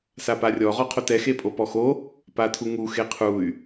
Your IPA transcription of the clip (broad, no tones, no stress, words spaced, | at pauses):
saparʲɔ ʁɔqʰotɛ xepʼopɔxo | patʰuŋu xeqʰuy̯